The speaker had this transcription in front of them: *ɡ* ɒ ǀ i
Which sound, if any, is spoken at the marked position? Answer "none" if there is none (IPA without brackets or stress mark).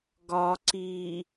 ɡ